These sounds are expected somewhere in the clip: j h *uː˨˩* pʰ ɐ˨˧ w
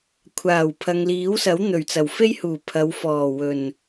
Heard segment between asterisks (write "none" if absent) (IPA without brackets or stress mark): uː˨˩